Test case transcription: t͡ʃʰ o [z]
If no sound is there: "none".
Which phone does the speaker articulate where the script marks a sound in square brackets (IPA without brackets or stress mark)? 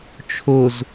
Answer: z